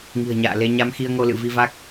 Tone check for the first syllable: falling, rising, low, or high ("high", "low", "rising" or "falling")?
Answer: low